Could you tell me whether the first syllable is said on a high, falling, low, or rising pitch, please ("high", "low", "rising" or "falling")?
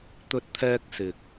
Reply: high